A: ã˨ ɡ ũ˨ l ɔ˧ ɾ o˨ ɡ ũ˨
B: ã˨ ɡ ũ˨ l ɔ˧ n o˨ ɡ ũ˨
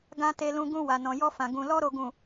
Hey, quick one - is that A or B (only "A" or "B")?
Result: A